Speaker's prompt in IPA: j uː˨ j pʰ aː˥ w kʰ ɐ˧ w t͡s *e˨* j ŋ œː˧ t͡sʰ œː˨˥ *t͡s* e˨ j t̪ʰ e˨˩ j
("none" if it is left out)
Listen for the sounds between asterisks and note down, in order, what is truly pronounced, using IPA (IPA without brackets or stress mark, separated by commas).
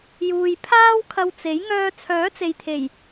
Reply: e˨˥, t͡s